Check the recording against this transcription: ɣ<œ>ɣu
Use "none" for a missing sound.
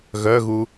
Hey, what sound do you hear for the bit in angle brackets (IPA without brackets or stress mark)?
œ